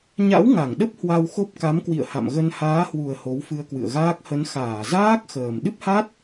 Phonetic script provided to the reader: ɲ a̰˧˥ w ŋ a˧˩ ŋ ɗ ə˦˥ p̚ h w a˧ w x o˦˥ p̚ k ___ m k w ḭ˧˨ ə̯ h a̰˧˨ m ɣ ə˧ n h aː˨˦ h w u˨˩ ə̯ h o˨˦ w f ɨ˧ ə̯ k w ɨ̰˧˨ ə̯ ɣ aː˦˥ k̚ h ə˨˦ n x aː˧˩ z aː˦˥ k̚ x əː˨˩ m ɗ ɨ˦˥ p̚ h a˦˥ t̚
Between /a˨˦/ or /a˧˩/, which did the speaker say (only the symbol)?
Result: a˨˦